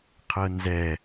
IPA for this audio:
qʰ ɤ n z ɛ

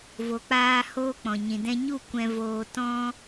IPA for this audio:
v o˨ k͡p aː˧ h oː˦ k͡p ɔ̃˨ ɲ ĩ˨ d ɛ̃˧ ɲ u˦˨ kʷ ɛ̃˧ v oː˧ t ɔ̃˦

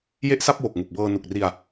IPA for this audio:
j e˥˩ ʔ s a˥˩ p̚ w o˨˩ k̚ ŋ u˨˩ k̚ b ɤː˧ n u˨˩ k̚ r i˧ a̯

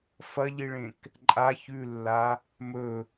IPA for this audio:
f ɐ ʎ i ɭ ẽ k | ǃʼ a ç ʉ lː a | m ɵ

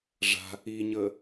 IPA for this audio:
ʐ a̤ | i ɲ əː

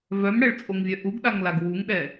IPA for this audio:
v œ m ɽ ɛ ɭ t͡sʼ o ŋ vʲ œ ʔ u ɡ ɗ a ŋ l a ɡ w u ŋ ɗ ɛ

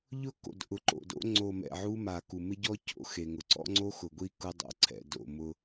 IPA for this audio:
ʎ ʊ˦ k o̰˨ d ʔ ʊ˨ ǃ o̰˨ d o̰˦ ŋ͡ǀ o˨ m ɛ̰˨ ʕ u˦ m a˨ k u˨ m ɪ˦ ɟ ɔ˦ c o̰˦ x e˨ ŋ ʊ˨ ǀ ɔ̰˦ ŋ͡ǀ o˦ x ʊ˨ ɡʷ i˦ k ʊ˦ dˤ o̰˨˦ ǀʰ ɛ̰˨ d o̰˦˨ m ʊ˦

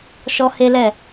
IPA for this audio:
ʃ ɔ˦ h e˦ l ɛ˦˨

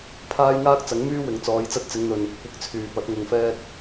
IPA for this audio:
pʰ aː˥ j ŋ aː˥ k̚ t͡s ɐ˨˥ ŋ m yː˥ w ɪ˨ ŋ t͡s ɔː˨˧ j t͡s ɐ˧ t̚ t͡s ɪ˨˧ ŋ n̪ ɵ˨ n | kʷ ɪ˨˥ k̚ t͡sʰ yː˨ p ɐ˨˥ t̚ ŋ ʊ˨ ŋ f ɛː˧ t̚

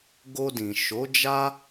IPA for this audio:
ɡ o˧ d ĩ˨ ʃ o˨˦ d͡ʒ a˦

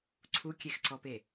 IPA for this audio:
ǀʰ u kʲ e x ǀ ɔ p e

